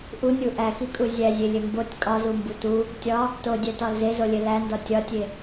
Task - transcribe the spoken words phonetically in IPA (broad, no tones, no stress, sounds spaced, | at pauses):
ʔ u nʲ u ʔ æ x i kʼ u zʲ æ zʲ e lʲ e m b o tʲ kʼ ɒ z u m b u t u | tʲ ɒ | t o dʲ æ t ɒ l z e z o lʲ e l æ n d ɒ tʲ ɒ tʲ e